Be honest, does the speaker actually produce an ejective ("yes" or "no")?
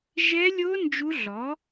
no